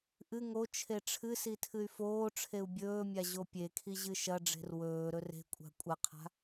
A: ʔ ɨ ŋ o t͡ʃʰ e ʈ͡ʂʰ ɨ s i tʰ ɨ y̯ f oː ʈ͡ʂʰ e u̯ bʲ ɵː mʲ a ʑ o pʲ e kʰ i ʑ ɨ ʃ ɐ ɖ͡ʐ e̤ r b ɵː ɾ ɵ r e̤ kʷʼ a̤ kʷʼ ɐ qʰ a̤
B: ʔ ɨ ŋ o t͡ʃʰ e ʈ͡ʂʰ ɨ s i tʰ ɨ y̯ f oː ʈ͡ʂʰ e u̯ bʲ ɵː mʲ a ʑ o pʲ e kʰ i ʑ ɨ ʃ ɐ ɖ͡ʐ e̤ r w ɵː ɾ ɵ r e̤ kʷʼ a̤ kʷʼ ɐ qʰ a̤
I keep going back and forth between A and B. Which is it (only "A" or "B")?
B